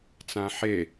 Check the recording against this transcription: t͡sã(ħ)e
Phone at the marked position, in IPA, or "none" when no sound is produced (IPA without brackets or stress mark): ħ